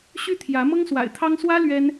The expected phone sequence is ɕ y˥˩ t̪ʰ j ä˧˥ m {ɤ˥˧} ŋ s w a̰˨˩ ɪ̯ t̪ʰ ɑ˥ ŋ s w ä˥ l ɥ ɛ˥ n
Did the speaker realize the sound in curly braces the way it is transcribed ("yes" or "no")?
no